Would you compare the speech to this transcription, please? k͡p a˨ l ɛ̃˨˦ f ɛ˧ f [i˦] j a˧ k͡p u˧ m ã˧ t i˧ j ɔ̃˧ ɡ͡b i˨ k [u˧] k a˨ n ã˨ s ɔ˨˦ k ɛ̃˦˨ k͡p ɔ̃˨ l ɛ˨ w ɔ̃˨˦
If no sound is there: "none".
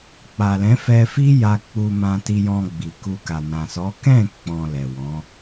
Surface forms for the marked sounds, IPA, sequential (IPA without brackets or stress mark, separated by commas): i˦, u˧